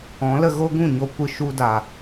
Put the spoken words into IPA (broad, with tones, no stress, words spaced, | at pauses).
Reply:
ɔ̃˨˦lə˧ ɣo˦ɡũ˦˨ɲo˧kʷɨ˧ ʃu˧da˨